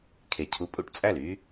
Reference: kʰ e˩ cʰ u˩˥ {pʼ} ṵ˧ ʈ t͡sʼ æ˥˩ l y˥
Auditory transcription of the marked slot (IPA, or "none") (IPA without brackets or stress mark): pʼ